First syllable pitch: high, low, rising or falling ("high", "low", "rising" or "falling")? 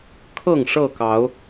falling